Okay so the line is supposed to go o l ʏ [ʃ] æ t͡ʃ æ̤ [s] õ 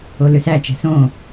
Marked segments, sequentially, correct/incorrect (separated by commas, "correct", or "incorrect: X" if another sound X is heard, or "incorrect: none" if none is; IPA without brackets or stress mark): incorrect: s, correct